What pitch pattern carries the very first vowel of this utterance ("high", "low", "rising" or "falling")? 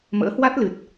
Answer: rising